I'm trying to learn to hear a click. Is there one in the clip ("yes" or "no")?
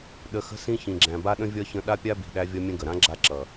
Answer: yes